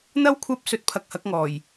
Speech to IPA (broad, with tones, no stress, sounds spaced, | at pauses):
n̪ ɐ˧ w kʷʰ ɐ˨˥ p̚ s ɵ˨˥ t̚ pʰ ɐ˨ k̚ h ɐ˨˥ k̚ ŋ ɔː˨˩ j